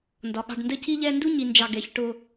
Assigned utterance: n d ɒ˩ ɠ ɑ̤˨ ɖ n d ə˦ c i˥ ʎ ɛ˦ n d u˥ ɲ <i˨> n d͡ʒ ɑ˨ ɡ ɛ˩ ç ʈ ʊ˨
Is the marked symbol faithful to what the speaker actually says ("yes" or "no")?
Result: yes